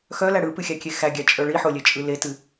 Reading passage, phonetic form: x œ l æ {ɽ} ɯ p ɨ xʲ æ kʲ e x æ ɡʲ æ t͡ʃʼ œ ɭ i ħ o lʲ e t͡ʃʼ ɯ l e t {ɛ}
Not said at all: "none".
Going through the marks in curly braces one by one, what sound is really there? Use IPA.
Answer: ɽ, ɨ

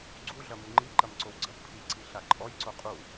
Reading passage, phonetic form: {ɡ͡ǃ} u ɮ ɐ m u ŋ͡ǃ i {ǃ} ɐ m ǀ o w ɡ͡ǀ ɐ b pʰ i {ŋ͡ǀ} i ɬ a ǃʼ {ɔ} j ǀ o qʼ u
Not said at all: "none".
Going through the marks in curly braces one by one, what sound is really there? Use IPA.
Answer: ɡ͡ǀ, ǃ, ǀ, ɔ

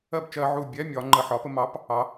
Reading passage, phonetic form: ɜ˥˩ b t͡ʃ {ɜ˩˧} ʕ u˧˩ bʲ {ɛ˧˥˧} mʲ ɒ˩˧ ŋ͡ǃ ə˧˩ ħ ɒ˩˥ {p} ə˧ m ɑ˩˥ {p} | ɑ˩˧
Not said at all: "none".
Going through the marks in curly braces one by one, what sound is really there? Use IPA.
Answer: ɜ˧, ɛ˧˥˧, p, p

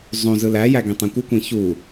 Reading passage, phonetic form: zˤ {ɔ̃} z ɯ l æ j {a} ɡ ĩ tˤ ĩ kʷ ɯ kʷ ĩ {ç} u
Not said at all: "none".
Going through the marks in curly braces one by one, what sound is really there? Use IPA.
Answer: õ, æ, ç

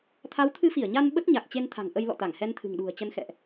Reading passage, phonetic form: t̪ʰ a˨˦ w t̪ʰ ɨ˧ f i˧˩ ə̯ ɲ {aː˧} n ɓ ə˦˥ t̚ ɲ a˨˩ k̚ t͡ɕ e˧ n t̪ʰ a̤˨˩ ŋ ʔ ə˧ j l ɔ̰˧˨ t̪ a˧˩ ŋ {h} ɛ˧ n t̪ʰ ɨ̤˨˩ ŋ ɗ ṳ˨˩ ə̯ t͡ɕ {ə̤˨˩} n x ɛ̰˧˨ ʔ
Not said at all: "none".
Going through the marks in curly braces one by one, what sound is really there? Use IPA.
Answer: a˧, h, ə˧

